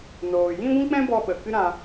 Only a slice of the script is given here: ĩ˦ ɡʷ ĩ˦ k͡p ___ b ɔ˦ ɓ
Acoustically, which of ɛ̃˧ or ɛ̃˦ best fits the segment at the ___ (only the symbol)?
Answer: ɛ̃˦